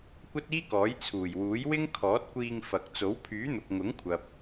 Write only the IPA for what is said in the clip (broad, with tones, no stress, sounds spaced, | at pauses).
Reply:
kʷ ɐ˥ t̚ iː˥ k ɔː˨˥ j t͡sʰ uː˨˩ j w uː˨˥ j w ɪ˥ ŋ kʰ ɔː˨˥ t̚ kʷ iː˧ ŋ f ɐ˨ k̚ t͡s o˨˥ w pʰ yː˨˥ n̪ ʊ˨ k̚ ŋ ʊ˨˥ ŋ kʷʰ ɐ˨ p̚